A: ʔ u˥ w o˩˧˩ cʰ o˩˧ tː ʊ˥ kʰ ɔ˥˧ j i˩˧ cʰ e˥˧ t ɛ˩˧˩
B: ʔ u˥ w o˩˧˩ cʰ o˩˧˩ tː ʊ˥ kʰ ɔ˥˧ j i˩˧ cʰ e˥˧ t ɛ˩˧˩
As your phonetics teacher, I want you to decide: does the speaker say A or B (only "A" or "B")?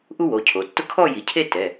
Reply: A